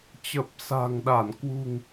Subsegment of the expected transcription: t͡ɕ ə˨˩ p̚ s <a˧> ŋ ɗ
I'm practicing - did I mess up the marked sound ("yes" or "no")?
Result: yes